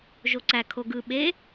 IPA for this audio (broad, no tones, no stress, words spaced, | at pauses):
ʒoǀæ kʰoɡɯ ɓe